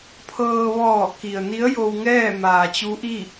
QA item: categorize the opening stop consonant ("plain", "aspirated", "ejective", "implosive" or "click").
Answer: aspirated